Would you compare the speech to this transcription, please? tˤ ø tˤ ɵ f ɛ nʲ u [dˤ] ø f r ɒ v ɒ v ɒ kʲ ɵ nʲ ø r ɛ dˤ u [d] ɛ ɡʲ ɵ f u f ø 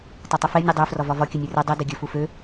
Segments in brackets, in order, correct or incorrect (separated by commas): correct, correct